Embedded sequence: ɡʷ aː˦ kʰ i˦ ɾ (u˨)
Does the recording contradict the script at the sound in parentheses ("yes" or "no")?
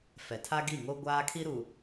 no